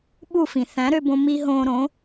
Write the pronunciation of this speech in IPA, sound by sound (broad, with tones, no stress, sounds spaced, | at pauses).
ɓ u˥˩ f ĩ˩ θ æ̃˩˥ ɾ ø˧ b õ˧ m i˥ ɦ õː˧ ɾ õ˩˥